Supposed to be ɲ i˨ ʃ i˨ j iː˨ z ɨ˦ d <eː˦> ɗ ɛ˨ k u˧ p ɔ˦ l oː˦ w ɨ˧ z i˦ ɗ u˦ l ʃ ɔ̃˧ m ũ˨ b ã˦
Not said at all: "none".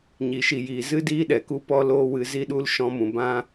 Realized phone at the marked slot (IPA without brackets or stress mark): iː˦